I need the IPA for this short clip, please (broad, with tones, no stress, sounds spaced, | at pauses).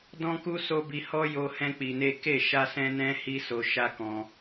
d ɔ̃˦ k u˦ s o˦ b i˧ h ɔ˦ j o˧ h ɛ̃˦ k͡p i˧ n e˦ k e˦˨ ʃ a˧ s ɛ̃˧ n ɛ̃˧ h i˦ s o˧ ʃ a˦ k ɔ̃˧